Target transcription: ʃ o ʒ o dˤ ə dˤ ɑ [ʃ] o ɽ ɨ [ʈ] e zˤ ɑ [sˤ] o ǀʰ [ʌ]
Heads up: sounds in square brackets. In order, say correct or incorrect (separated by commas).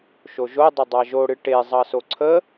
incorrect, correct, incorrect, incorrect